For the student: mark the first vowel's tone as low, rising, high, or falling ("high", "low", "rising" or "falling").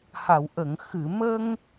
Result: low